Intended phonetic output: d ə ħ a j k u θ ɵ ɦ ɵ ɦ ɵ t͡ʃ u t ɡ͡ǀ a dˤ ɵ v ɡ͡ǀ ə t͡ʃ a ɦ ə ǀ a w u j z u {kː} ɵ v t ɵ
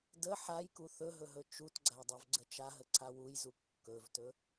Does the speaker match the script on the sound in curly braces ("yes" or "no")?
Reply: yes